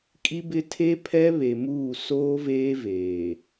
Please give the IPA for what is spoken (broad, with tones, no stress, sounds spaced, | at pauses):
kʼ i˦ b ɪ˦ tʰ e˦ pʰ ɛ˦ β e˨ m uː˦˨ s oː˦ v eː˦ v eː˨